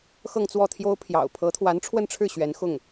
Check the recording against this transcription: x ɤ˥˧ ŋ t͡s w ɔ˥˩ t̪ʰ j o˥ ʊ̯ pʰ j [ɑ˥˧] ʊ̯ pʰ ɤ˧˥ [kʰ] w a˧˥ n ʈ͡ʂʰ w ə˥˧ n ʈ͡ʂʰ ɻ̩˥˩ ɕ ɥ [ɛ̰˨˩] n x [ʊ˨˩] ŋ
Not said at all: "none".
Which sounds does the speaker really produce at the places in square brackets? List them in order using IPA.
ɑ̰˨˩, t̪ʰ, ɛ˧˥, ʊ˥˩

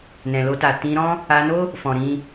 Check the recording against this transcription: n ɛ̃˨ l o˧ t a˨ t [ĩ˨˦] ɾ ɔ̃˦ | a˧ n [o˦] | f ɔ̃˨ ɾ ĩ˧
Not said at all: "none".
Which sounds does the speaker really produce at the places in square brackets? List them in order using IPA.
ĩ˧, o˦

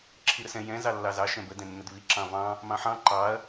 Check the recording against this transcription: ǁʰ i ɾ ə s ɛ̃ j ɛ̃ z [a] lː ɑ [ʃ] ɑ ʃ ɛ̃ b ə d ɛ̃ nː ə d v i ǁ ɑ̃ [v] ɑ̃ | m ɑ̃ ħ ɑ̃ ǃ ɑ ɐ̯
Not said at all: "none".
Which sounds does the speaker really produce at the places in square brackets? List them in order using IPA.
ɑ, z, v

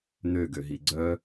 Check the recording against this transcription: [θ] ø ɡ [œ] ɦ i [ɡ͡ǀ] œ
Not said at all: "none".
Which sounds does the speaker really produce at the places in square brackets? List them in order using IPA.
n, ø, ɡ͡ǀ

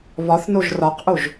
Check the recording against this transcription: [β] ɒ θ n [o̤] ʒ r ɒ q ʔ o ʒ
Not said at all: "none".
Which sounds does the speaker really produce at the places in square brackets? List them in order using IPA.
β, o

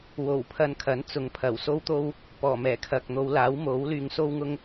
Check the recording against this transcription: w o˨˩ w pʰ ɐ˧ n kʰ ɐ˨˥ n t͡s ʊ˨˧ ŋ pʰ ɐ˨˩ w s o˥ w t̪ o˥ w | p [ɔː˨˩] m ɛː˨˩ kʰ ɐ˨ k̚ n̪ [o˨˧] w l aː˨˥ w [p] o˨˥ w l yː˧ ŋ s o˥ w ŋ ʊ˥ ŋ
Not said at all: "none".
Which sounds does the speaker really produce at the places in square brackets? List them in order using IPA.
ɔː˨˩, o˨˧, m

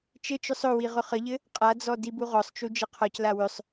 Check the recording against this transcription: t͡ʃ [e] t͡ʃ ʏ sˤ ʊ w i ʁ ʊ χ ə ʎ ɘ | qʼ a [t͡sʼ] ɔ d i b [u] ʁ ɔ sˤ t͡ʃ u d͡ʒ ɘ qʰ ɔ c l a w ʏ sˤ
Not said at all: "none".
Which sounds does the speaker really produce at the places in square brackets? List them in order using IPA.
ɘ, d͡z, u

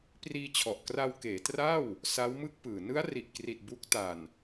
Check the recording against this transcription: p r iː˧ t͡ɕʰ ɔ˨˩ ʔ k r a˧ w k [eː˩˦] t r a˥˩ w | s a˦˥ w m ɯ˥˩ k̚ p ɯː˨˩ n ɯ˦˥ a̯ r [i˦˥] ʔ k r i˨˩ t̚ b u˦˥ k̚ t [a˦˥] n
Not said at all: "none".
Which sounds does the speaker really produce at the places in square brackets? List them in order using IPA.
eː˩˦, i˨˩, a˨˩

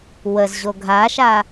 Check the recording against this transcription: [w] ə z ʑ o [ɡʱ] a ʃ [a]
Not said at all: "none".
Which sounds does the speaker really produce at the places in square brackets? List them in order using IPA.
w, ɡʱ, a

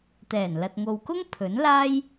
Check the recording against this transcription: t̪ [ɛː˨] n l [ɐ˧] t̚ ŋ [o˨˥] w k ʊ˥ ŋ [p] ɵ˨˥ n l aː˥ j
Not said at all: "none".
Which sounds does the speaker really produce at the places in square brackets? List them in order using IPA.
ɛː˨˩, ɐ˨, o˨, pʰ

